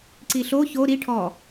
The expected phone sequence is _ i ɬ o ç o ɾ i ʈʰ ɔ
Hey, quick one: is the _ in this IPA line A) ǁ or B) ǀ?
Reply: B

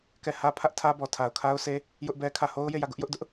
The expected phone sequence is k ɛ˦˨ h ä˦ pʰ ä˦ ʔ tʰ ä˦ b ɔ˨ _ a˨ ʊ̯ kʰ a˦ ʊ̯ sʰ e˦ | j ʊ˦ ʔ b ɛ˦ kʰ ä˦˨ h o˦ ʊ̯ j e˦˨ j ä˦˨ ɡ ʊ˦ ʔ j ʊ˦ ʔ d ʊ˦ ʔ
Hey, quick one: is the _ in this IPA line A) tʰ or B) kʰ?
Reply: A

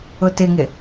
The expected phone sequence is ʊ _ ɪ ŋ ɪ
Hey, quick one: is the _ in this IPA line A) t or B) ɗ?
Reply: A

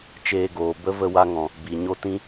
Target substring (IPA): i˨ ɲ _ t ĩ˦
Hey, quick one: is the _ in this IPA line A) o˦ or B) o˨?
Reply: A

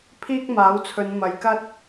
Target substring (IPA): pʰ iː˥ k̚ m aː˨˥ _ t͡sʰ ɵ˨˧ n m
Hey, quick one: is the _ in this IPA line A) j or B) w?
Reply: B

